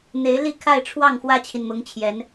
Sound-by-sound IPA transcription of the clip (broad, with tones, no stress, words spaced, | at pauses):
n̪e˧˥ɪ̯li˥˧kʰa˥˧ɪ̯ʈ͡ʂʰwɑ˥˩ŋ xwä˥t͡ɕʰi˨nmʊ˧˥ŋ t͡ɕʰjɛ˧˥n